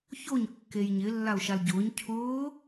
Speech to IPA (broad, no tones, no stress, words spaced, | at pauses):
çoɲ kːejɲɪ lːaʊ̯ʃalɟʊːɲ cʰʊː